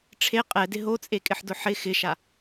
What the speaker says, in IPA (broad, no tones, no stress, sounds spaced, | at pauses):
ʈ͡ʂʰ e qʼ ɛ d ɪ ɦ o t͡sʼ e kʼ ɪ ħ d ʊ ħ ɪ x ɪ ʃ a